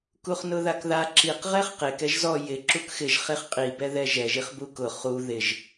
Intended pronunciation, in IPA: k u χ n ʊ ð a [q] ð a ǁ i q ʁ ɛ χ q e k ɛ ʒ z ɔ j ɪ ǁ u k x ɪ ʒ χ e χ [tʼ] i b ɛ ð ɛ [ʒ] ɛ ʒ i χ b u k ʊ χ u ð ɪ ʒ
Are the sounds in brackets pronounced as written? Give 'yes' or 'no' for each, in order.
no, no, yes

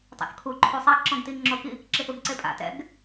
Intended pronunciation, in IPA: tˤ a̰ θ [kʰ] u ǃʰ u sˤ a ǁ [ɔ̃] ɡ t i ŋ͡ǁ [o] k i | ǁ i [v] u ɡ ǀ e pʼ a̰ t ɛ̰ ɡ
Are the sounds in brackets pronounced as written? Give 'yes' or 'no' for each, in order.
yes, yes, yes, no

